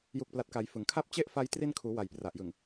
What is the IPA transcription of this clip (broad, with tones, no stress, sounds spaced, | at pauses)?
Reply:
j u˨˩ k̚ p l a˨˩ t̚ k a˩˦ j f ɯ˩˦ ŋ kʰ a˥˩ p̚ t͡ɕ e˥˩ ʔ f a˦˥ j t r i˧ n kʰ uː˩˦ w a˨˩ j p r a˨˩ ʔ j ɯ˨˩ ŋ